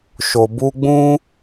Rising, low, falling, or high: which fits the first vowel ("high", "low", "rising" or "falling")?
low